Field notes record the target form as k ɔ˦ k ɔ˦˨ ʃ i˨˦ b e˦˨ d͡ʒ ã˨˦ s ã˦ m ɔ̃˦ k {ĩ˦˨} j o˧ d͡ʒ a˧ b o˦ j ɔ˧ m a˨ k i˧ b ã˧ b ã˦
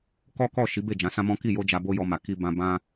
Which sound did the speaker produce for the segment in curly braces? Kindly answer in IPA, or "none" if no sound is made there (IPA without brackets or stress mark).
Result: i˦˨